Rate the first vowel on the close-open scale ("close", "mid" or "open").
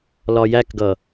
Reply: open